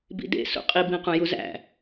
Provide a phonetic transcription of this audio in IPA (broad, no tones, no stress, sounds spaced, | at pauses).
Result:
b ḭ d ḛ s ṵ qʼ i b ĩ q ũ j u z æ̰